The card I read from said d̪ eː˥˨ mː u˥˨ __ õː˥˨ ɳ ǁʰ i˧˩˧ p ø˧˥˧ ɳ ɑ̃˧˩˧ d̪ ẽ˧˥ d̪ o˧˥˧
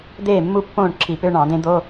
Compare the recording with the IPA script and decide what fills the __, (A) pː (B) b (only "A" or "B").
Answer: A